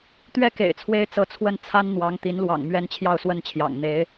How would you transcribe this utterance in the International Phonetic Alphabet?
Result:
t̪ ɥ ɛ˥˩ k ḛ˨˩ ɪ̯ t͡sʰ w e˥ ɪ̯ t͡s ɤ˧˥ t͡sʰ w ə˥˩ n t͡sʰ a˥ n n̪ w ɑ˧˥ ŋ t̪ i˧˥ n l w ɑ̰˨˩ ŋ m ɥ ɛ˥ n t͡ɕʰ j ɑ˥˧ ʊ̯ s w ə˥˩ n t͡ɕʰ j ɑ̰˨˩ ŋ n̪ e˧˥ ɪ̯

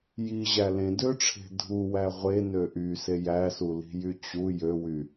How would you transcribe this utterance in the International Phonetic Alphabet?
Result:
j i ʑ æ l ẽ d ø ʈ͡ʂʰ e̤ dʱ u w æ ʁʷ e n ø ʔ y s e j æ s u l i̤ j y t͡ɕ u j ø w y

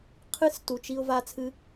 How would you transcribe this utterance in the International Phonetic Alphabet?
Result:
qʰ ɨ˦˨ s t u˨ t͡ʃ i˧ ʊ̯ v a˧ t͡sʰ ɨ˧

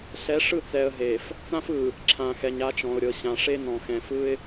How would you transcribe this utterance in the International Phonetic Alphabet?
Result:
ɬ ɛ˨˦ ʂ ɯ˦˨ t͡s ɛ˨ ə̯ ɦ e˨ f | t͡s ã˦ f ɯ˨ | ǁʰ ã˨ x ɛ˨ ɲ a˦ t͡ʃ ɔ̃˨ ʊ̯ ɾʲ ɤ˨ ɕ ã˨ ʂ e˦ n ɔ̃˨ x ɛ̃˨ f ɯ˦ ɪ̯

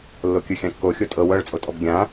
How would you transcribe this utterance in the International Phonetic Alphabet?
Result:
lː o kʲ ɯ xʲ ã kː o xʲ o tʼ ɤ w ɤ ɭ t͡sʼ o tʼ ɔ b ɡʲ ã

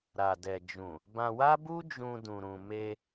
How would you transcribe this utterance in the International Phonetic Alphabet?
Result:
ɾ a˨ d ɛ˨ d͡ʒ ũ˨ | b ã˧ w a˦ b u˦ d͡ʒ ũ˧ d ũ˨ ɾ ũ˨ m e˧

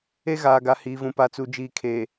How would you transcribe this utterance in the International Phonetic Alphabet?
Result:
e˦ ɣ aː˨ ɡ a˨ h iː˨ v ũ˨ p a˨ t͡s u˨ d͡ʒ iː˨ kʰ e˨

